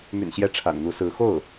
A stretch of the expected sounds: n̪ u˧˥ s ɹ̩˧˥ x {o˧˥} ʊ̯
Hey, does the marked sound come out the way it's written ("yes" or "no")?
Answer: no